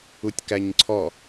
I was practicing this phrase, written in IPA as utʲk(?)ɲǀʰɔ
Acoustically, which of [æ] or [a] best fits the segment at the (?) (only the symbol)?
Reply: æ